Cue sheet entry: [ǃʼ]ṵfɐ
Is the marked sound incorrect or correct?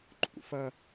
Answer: correct